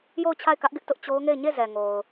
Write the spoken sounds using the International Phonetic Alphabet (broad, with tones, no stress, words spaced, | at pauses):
jo˦˨ʊ̯t͡ɕʰa˦˨ɪ̯kä˦ʔɡɪ˦ʔ tʊ˦ʔt͡ɕo˦ʊ̯ŋe˦˨ɪ̯ ɲe˦˨ zɛ˨ŋo˨ʊ̯